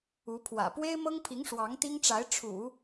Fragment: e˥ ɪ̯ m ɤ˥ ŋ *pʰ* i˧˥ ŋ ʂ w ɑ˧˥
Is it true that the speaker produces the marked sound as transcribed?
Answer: yes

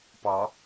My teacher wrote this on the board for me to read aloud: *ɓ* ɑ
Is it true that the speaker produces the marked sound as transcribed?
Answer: no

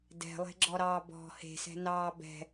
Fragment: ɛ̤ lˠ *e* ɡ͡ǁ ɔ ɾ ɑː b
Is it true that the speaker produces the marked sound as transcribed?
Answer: no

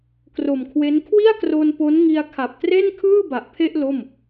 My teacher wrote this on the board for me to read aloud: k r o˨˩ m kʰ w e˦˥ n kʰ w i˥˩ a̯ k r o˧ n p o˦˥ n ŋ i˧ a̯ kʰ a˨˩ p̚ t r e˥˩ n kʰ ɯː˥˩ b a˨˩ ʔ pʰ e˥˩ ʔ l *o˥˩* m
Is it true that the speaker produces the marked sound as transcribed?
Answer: yes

